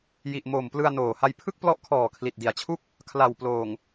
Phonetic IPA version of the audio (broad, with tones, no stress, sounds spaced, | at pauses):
j i˨˩ ʔ m o˨˩ m p l ɯ˧ a̯ n oː˨˩ h a˧ j pʰ ɯ˥˩ k̚ p l ɔ˦˥ ʔ kʰ ɔː˨˩ kʰ l i˨˩ t̚ d i˨˩ a̯ t͡ɕʰ u˥˩ k̚ | kʰ l a˨˩ w p l oː˨˩ ŋ